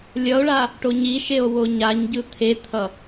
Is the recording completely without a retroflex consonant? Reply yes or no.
no